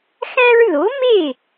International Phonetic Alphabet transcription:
xæ̃˦ɹ ðo˩˥me˥˩

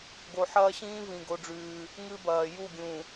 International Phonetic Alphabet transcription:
ɡo˨ħɐː˦ɕĩː˦ vĩ˨ ɡo˦ɖ͡ʐʉː˦ | ŋɨ˦bɐː˨ ju˦˨ɡʲũ˨

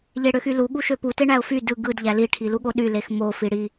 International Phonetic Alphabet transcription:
ʎeɽøxylu ɠuʃøpu teɳæʊ̯fy dɯ ɡɯd ʎæli ʈʰiluɠoɗy lexmo fiɽi

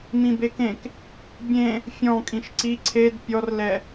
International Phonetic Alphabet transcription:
mĩbekẽk | bʲẽ | fʲɔ̃ kʼĩʃǀi ǀʰed pʲɔrlɛ

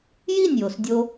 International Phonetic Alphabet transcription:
ji˥˩nʲjo˩sdʲo˧

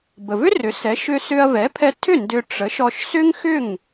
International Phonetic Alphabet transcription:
bə˩vʏ˥rʏ˩˥ sɛ˩˥ʃʏ˧ sʏ˧ɐ̯ vɛ˩˥pʰɛ˧tʰʏ˥˩ ndʏ˧ ʈ͡ʂə˩˥ʃ ɔ˧ʃsʏ˥ŋxʏ˥˩ŋ

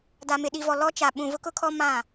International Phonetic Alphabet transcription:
da˨mɪ˨ɗi˨vɔ˨ lɔ˦t͡ʃa˨ ɓũ˨ vʊ˦kʊ˦kʰɔ˦ mã˦˨

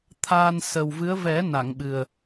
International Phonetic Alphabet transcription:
t̪ʰaː˧n sə˨˩wvɨ˧˥ə̯ vɛ˨˩˦ na˨˩˨ŋɓɨ˨˩ə̯

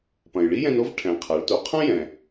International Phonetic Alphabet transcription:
pɐ̃˩jɭi˥jɛ̃˧n o˥v ʈʰɛ̃˩˧ qʰa˩˧ɭto˩˧ qʰɐ̃˥jɛ̃˩

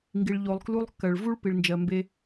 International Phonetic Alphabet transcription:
ŋɡi˨ɭʎo˨lˠklu˦lˠkːɜ˨ɭ vu˥ɭpi˨ɭnd͡ʒɜ˨ mbe˦

